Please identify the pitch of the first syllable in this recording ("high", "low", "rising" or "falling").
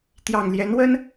low